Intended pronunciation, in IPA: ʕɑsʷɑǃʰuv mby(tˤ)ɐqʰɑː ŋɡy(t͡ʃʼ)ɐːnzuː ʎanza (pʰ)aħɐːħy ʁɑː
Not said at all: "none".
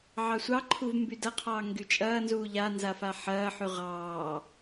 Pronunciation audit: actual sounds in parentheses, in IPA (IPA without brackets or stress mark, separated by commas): d, t͡ʃʼ, f